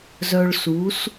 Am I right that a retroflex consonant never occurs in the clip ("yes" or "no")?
no